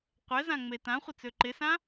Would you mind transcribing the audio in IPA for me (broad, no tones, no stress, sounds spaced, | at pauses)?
qʷ ɛ z ã ŋ͡m e t ã χʷ ɪ t͡s ø ǃ ɪ s ã